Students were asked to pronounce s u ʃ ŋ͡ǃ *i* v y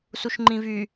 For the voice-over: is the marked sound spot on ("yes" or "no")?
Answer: no